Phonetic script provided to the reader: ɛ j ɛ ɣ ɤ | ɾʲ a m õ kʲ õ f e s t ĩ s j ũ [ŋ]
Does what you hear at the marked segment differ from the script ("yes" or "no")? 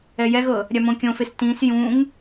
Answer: no